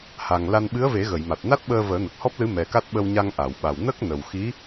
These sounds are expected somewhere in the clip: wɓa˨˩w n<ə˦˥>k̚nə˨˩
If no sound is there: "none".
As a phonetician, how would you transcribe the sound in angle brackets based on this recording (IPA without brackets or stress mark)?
ə˦˥